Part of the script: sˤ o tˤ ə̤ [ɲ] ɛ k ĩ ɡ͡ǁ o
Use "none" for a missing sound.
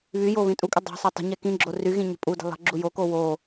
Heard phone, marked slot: ɲ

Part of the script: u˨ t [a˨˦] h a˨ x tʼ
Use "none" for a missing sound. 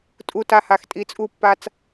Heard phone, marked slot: a˨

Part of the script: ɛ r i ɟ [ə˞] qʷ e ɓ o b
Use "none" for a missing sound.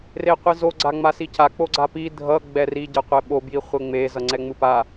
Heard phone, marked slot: ʌ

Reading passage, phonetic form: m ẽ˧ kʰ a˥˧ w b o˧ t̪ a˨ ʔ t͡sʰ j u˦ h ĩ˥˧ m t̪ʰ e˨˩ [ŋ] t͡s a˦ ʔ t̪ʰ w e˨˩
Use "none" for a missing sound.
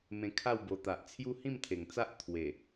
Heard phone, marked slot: ŋ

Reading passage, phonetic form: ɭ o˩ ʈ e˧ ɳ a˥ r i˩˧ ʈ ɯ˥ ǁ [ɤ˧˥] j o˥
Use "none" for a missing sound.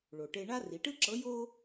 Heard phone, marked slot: ɤ˧˥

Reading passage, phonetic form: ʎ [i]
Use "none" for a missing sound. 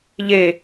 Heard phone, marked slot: e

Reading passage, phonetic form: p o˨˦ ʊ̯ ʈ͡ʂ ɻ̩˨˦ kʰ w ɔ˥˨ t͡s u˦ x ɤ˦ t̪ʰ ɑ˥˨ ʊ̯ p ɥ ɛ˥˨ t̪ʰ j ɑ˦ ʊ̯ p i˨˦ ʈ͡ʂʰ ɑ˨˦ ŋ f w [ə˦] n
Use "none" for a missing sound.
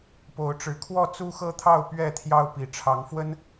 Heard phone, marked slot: ə˦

